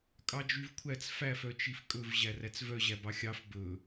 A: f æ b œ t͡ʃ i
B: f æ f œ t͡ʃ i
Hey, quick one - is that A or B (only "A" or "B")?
B